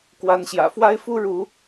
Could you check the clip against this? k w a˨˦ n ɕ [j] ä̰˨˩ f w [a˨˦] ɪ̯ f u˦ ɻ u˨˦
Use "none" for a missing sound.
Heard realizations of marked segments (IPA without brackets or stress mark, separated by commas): j, a˦